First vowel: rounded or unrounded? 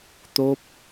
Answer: rounded